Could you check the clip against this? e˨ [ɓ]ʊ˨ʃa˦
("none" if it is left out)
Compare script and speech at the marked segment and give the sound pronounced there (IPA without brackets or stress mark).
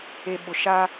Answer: ɓ